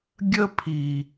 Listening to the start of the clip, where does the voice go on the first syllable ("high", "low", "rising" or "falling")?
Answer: high